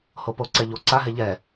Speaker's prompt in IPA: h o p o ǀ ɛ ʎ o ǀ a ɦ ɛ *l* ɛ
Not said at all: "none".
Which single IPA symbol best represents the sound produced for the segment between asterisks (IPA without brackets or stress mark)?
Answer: ʎ